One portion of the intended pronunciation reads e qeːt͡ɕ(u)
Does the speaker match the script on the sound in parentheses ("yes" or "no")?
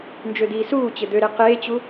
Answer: yes